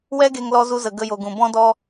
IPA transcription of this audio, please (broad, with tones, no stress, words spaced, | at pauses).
wɛ˦ɡe˧ŋ lɔ˧zu˧zə˨ ɡə˧jo˨ɡũ˨ bɔ̃˦dɔ˦